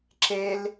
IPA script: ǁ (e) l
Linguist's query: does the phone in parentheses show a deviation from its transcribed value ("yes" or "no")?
no